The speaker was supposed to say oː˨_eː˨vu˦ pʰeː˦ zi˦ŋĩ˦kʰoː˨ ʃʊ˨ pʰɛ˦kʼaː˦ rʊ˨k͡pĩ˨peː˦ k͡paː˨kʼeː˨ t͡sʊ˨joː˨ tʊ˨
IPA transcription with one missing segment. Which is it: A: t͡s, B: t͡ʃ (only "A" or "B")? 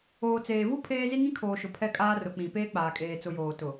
A